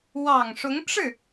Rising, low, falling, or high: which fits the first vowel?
low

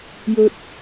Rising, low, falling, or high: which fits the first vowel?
high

